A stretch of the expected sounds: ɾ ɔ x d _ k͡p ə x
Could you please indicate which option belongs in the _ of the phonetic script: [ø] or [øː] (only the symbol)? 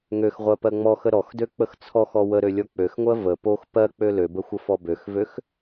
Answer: ø